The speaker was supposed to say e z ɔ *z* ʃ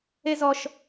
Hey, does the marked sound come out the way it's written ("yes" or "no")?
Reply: no